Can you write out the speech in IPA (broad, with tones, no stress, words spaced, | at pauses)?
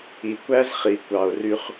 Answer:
i˨kʷæ˦zχi˨ kʷɑ˨o̯ry˦χ